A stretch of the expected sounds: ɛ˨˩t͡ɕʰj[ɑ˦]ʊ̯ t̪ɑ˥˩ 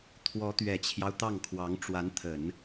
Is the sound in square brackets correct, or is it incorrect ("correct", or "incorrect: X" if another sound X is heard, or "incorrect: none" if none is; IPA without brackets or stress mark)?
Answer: correct